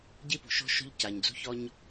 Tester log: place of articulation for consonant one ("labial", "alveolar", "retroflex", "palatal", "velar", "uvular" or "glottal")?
palatal